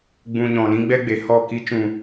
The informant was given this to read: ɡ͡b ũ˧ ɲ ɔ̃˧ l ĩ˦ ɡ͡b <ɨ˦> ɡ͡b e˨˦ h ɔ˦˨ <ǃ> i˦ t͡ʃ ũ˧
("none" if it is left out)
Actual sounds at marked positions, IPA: ɛ˦, k

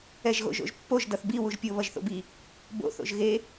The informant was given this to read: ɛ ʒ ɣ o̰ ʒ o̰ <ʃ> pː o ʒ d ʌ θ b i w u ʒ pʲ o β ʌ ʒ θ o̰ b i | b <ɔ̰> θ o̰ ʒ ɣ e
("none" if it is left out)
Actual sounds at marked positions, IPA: ʒ, o̰

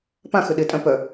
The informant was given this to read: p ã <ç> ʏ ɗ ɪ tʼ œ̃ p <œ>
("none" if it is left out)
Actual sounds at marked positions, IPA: x, œ

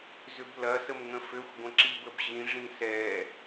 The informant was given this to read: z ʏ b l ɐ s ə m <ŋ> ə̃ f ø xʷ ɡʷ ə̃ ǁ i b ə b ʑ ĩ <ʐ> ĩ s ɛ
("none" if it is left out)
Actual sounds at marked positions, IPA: ŋ, ʐ

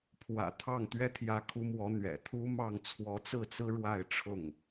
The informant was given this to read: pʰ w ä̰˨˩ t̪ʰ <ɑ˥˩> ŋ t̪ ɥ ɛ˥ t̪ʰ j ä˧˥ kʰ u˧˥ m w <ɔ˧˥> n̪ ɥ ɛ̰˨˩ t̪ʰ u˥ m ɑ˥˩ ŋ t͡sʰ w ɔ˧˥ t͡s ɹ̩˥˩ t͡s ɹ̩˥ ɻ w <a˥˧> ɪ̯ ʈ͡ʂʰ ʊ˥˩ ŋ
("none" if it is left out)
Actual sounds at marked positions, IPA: ɑ˥˩, ɔ˧˥, a˥˧

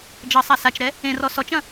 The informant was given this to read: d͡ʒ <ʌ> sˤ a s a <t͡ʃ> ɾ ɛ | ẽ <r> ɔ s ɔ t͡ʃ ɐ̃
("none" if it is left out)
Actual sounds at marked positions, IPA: ʌ, t͡ʃ, r

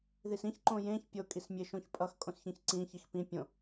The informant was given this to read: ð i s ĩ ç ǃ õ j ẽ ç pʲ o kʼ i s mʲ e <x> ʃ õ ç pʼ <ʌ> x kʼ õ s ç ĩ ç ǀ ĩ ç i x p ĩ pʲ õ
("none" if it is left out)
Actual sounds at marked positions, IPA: none, ʌ

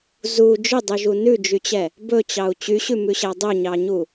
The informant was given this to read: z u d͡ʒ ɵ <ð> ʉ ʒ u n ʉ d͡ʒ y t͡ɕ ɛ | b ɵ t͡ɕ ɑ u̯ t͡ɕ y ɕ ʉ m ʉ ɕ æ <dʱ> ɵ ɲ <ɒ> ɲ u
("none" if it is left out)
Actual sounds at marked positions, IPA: dˤ, dˤ, ɑ

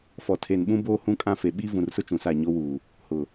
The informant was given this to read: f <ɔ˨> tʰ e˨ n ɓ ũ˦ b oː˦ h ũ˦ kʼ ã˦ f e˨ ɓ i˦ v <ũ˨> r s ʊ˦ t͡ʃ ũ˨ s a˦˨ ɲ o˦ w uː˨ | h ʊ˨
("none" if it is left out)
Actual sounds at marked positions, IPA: ɔ˨, ũ˨

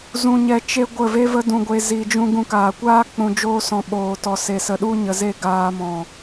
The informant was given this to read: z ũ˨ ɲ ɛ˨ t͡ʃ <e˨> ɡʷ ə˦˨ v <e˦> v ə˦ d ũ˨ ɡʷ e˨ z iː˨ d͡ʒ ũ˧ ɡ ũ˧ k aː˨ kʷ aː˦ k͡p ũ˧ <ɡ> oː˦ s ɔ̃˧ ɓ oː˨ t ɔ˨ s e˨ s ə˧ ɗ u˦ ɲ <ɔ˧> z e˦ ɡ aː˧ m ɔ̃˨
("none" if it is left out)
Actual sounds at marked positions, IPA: e˧, e˦, d͡ʒ, ə˧

